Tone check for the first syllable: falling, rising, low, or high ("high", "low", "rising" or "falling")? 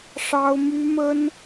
high